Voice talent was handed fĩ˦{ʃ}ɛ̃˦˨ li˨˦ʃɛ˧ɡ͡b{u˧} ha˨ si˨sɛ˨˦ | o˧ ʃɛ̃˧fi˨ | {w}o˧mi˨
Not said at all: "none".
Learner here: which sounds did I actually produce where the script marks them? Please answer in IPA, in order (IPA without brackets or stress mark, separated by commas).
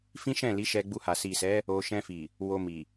ʃ, u˧, w